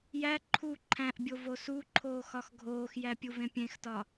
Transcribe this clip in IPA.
jæ ǃʰu ǃʰæ̃ʔbʲo vosuǃʰoː xɒxɡʱoːxjæ pʲuvẽpʲẽxtɒ

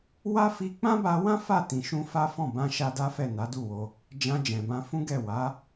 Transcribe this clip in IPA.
wa˦ fi˧k͡pã˦ba˧wã˦ fa˦˨tĩ˨ʃũ˧ fa˦fɔ̃˦˨ bã˧ʃa˧ da˦fɛ˦˨ na˨˦du˦˨wo˧ | d͡ʒã˧ d͡ʒɛ̃˨bã˧ fũ˦ɡɛ˦˨ wa˨˦

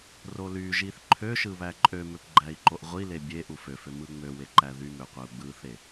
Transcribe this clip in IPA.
rolyʒiθ ǃʰøʃɯβæ ǃʼømøpɡ͡ǃæi̯ ǃoʔʁʷile bʲeʔu føfø mɯŋ͡møwe ǃæðymøqʷæu̯ ɡ͡bɯθe

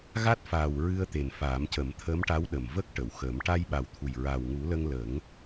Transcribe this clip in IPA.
ɣa˦˥t̚faː˨˩w ɹɨ˧ə̯t̪e˨˩n faː˨˩˦mcə˨˩˦mt̪ʰəː˧˥mʈa˧˥w ɗə˨˩mvə˦˥k̚ ʈə˨˩˨wxəː˨˩˦m ʈa˧jɓa˨˩wt̪ʰu˨˩j ɹa˨˩wŋu˨˩˦lə˧ŋ lə˨˩˦ŋ

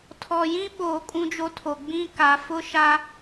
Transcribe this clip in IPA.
tʰɔ˨jĩ˦ɓoː˨ kʼũ˦d͡ʒo˦tʰo˨ ɡ͡bĩ˦ka˨˦ fʊ˦ʃa˦

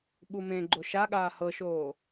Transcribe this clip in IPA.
ɓumẽɡ͡ǃo ʃaɠaː hɤʃoː

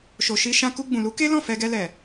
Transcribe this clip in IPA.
ʃo˨ʃi˧ʃã˧ ku˧ɡ͡bũ˨lu˨˦ ke˦lɔ̃˦˨ fɛ˧ɡɛ˧lɛ˨

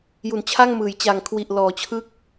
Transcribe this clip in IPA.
ju˨˩nt͡ɕʰa˥˩ŋmɯː˩˦j t͡ɕa˨˩ŋkʰwi˨˩ʔ lɔː˩˦t͡ɕʰɯ˦˥k̚

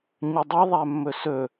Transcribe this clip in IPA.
ɲɵdˤi ðˤæmːɵsɵ

